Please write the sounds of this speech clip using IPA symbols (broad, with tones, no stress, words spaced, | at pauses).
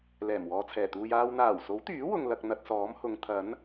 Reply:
lɛː˨˩mwɔː˨t͡sʰɛː˨˩t̪uː˧j aː˧w n̪aː˨˩wso˨˥wt̪yː˨˥wʊ˨ŋ lɐ˧k̚n̪ɐ˧t̚sɔː˨˥mhʊ˨˧ŋ t̪ʰɐ˨˥n